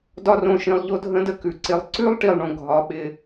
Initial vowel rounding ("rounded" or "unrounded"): rounded